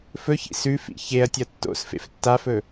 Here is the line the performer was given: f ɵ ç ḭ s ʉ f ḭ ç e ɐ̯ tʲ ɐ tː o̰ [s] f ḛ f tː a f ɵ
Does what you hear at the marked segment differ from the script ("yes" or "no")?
no